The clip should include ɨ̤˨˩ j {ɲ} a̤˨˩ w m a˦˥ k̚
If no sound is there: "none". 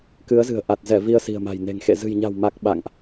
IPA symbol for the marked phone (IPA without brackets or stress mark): ɲ